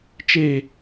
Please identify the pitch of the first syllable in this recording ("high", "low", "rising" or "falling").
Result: falling